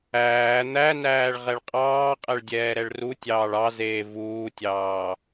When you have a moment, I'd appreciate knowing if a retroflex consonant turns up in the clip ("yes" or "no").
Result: yes